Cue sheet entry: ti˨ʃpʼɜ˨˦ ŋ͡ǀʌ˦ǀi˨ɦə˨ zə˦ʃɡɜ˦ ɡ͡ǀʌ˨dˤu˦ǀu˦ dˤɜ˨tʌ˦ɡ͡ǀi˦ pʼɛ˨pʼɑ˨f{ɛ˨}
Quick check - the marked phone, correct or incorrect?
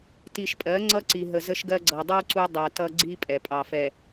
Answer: correct